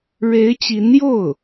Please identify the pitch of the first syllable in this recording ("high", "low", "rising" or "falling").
rising